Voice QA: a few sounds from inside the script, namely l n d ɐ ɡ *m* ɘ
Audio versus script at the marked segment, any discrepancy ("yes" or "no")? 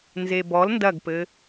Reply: yes